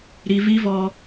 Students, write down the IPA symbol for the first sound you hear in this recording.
ɾ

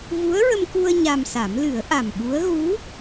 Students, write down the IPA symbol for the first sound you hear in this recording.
v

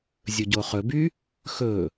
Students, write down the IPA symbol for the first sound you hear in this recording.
zʲ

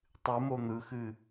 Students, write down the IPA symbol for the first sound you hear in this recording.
tˤ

